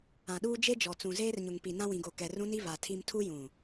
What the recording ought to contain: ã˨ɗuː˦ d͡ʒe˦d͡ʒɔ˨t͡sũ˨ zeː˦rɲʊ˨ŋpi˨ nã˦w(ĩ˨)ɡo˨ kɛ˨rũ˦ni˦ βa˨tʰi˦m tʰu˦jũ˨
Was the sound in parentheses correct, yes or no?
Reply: yes